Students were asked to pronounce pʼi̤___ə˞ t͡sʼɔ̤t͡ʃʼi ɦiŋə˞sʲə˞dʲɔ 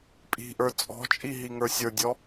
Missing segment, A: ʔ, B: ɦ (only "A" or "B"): A